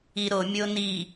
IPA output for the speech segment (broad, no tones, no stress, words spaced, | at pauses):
iɾomʲo ni